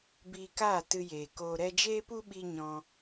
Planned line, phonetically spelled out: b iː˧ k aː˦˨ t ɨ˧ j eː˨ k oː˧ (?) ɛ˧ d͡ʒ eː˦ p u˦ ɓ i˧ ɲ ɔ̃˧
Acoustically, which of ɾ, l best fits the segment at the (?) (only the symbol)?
ɾ